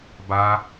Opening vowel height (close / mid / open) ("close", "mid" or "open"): open